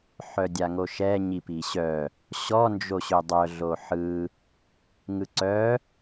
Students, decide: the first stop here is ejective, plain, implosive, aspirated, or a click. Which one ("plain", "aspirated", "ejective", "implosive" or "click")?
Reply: plain